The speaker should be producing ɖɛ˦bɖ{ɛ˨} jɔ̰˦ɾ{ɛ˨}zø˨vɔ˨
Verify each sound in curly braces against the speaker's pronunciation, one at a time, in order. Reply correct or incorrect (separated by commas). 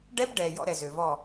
correct, correct